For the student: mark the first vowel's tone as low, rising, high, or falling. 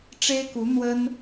high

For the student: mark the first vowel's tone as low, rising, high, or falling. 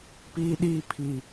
high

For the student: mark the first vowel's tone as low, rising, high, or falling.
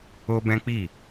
high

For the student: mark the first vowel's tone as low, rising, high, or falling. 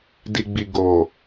low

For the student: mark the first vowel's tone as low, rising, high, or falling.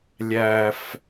low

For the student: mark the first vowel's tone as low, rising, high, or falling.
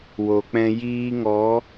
low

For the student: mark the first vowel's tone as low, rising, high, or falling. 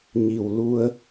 low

